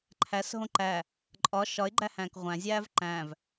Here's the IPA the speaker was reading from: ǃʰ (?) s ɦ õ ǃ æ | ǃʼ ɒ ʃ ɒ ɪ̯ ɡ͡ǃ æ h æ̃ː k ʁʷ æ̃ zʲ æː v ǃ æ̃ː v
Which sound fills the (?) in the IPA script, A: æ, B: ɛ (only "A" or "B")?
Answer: A